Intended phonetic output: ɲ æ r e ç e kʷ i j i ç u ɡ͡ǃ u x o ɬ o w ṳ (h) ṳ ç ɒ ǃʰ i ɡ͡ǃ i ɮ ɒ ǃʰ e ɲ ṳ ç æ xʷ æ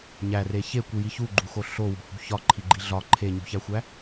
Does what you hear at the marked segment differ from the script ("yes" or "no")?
no